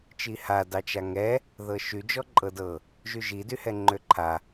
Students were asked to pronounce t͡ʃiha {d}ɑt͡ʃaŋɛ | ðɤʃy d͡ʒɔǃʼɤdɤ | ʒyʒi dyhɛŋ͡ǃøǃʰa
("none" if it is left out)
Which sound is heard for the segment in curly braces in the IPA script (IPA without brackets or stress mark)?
d